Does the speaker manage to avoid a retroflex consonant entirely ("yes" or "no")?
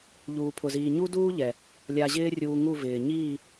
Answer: yes